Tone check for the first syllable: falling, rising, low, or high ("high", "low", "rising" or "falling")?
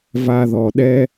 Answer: low